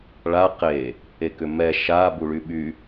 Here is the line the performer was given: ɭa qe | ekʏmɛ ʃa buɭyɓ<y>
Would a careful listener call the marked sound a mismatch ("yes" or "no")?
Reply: no